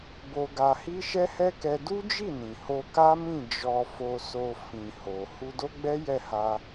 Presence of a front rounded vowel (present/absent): absent